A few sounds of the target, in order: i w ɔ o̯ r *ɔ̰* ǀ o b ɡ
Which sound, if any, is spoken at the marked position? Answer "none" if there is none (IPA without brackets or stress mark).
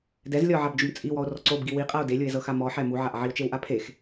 ɔ